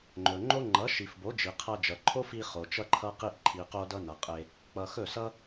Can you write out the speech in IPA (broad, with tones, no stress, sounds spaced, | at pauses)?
ŋ͡ǃ ɵ˨ ŋ͡ǃ o˦ ŋ͡ǃ ʌ˨˦ ʃ i˨ f b o˨˦ d͡ʒ i˨ qʰ ʌ˧ d͡ʒ ʌ˨ ǃʰ o˦ f i˧ χ o˨ t͡ʃ ʌ˦ ǃʰ ʌ˦ q i˧ ʔ ǃʰ i˨ q o˧ d ʌ˧ n ʌ˨ qʼ e˧ | k͡p ʌ˨ x ɵ˦˨ s ʌ˦